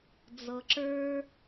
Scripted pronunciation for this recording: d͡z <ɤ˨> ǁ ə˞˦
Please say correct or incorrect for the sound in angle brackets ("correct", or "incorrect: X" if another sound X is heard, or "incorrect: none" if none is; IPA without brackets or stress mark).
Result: correct